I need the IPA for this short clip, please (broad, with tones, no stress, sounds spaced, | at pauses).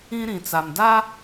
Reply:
ĩ˦ ɾ ĩ˨ t͡s a˨ m d a˦